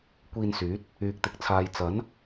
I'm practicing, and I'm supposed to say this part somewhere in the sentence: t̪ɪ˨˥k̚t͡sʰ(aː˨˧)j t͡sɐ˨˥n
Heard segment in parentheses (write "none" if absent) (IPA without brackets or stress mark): aː˨